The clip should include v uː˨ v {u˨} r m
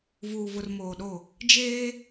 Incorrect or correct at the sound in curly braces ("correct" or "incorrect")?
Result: incorrect